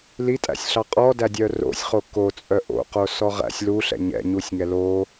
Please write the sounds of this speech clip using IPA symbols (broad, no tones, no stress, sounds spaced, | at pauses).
l i tʼ æ̰ sʲ ɬ ɑ qʼ ɔ d æ dʲ œ r o̰ sʲ χ o k o t͡sʼ œ ʔ o̰ q o s ɔ ʁ æ̰ sʲ l u ɬ ɛ̰ ɲ ɛ̰ ɲ u sʲ ŋ ɛ l o